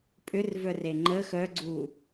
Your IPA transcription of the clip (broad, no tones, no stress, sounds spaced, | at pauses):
pʼ ʏ r v œ r e ŋ͡ǃ ə x œ ɡ͡ǀ u